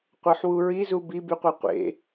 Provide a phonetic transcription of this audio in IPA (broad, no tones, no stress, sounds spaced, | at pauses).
qʷ ə˞ ħ w u ɹ i z u b i b y qʷ e qʷ ḛ